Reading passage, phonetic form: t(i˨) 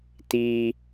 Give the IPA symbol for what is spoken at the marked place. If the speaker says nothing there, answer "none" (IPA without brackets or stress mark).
i˦